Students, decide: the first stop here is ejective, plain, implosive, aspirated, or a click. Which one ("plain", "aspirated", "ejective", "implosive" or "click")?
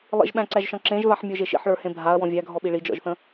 implosive